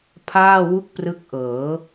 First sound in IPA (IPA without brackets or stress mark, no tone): pʰ